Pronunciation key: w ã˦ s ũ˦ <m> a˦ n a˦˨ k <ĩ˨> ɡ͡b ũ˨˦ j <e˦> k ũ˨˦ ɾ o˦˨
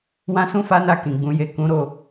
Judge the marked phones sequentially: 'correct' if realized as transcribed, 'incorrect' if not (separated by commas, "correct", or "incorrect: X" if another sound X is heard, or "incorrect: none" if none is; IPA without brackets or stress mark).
incorrect: f, correct, incorrect: e˦˨